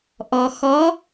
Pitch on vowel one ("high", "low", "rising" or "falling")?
low